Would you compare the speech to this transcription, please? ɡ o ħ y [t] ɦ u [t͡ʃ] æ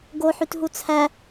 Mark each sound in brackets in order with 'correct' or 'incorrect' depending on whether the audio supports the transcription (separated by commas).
correct, incorrect